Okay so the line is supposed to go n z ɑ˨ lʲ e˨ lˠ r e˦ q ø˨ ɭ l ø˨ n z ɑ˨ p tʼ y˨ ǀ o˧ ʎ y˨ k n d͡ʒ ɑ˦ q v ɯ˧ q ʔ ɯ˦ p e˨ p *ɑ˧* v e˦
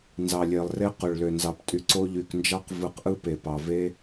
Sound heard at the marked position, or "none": ɑ˨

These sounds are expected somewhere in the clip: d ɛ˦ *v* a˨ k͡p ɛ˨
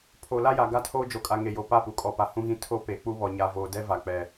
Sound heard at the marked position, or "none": v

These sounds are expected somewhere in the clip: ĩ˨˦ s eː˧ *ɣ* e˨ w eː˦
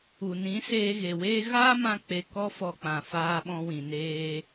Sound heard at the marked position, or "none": ɣ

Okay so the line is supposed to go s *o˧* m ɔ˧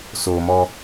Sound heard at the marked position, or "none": o˧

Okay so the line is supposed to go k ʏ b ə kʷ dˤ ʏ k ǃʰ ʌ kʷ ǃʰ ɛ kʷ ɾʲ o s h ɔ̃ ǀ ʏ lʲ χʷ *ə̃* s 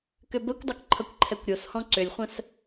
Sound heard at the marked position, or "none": ə̃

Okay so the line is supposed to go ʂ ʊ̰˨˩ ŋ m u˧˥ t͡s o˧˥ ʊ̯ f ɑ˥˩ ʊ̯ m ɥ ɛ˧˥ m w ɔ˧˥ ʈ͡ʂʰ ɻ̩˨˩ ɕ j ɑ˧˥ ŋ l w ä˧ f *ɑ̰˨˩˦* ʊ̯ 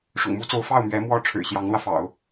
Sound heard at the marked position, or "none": ɑ̰˨˩˦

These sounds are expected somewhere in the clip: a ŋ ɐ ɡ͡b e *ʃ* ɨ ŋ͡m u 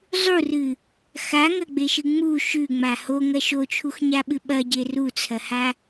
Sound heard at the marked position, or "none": ʃ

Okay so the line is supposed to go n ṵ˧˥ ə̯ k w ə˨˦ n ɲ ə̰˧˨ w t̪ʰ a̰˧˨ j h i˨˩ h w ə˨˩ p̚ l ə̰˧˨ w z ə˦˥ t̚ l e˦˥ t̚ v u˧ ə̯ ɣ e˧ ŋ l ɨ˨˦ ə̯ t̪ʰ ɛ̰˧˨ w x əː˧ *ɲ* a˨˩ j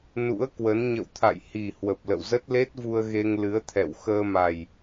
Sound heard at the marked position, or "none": m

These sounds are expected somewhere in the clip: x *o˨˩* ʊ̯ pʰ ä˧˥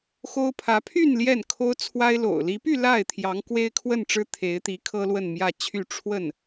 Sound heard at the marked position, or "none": o˥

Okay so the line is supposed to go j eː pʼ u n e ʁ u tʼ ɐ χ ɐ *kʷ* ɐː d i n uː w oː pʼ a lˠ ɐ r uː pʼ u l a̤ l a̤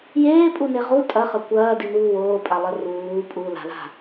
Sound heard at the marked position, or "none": kʷ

